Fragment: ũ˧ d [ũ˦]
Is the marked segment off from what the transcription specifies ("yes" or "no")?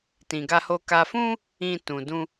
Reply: no